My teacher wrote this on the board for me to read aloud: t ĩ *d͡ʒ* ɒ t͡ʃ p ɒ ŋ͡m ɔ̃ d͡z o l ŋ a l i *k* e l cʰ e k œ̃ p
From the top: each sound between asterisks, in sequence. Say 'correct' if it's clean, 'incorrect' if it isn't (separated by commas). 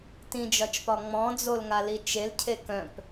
correct, incorrect